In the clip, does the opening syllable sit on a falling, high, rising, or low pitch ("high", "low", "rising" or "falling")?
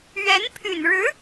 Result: rising